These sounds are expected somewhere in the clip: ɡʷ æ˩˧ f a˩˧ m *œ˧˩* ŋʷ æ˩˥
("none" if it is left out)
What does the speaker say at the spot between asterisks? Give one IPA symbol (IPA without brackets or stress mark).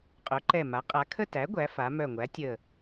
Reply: œ˧˩